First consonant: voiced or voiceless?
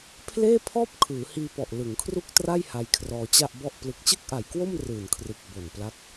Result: voiceless